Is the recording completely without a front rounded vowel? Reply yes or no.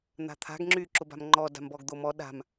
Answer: no